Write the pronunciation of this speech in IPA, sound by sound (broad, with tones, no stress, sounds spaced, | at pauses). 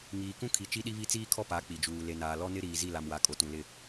ŋ iː˨ k ũ˦ kʰ i˨ t͡ʃ i˦ ɗ i˦ β i˦ t͡s iː˦ kʰ ɔ˦ p a˨˦ k͡p i˨ d͡ʒ uː˨ l e˨ n aː˨ l ɔ˦ n ɪ˦ ɾ iː˨ z i˦˨ l a˨ m w a˨ kʼ o˨ t ũ˨ l ɪ˦˨